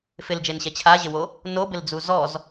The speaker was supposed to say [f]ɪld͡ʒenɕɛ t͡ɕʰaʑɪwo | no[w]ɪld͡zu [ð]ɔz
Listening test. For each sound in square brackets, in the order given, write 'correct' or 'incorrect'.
correct, incorrect, incorrect

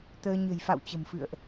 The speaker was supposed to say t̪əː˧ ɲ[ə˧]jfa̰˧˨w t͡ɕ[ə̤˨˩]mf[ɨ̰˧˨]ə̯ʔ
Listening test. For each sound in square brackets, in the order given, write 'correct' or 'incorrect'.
incorrect, correct, correct

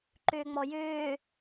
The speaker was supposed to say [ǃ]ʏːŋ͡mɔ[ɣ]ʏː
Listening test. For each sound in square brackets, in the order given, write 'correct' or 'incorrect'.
correct, incorrect

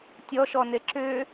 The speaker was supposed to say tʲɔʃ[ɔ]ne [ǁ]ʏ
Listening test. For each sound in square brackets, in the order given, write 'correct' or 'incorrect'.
correct, correct

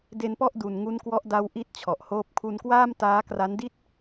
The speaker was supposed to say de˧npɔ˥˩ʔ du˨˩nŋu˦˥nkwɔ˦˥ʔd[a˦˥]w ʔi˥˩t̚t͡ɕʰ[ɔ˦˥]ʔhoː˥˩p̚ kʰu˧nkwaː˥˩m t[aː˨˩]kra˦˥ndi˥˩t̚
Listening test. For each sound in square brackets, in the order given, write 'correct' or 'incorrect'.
correct, incorrect, incorrect

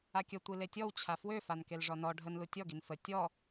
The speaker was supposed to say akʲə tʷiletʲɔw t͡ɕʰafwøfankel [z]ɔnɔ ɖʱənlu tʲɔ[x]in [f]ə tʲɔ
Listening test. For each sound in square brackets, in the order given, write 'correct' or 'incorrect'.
incorrect, incorrect, correct

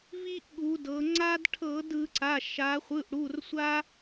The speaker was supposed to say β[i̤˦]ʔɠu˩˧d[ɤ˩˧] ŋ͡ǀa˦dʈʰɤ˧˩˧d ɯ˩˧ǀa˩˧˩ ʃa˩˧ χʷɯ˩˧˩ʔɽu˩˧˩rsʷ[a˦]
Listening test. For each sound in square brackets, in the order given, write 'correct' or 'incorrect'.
incorrect, correct, correct

